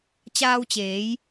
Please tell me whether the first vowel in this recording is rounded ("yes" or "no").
no